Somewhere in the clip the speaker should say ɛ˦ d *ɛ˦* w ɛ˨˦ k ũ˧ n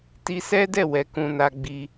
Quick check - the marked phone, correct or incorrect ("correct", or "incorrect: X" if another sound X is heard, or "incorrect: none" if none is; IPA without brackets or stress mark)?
incorrect: ɛ˦˨